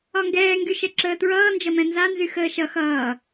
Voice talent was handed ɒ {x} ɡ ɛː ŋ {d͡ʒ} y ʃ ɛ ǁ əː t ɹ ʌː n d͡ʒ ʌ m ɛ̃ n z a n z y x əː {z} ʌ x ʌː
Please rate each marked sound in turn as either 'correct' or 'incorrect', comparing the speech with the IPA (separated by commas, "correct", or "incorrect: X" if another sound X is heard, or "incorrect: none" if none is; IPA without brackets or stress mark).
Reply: incorrect: ŋ, incorrect: ɡ, incorrect: ʃ